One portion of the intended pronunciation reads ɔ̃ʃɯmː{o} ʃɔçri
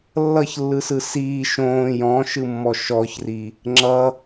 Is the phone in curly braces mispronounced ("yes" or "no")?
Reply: yes